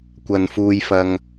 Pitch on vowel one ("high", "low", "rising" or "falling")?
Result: high